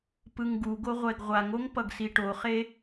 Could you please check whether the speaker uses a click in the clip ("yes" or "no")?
no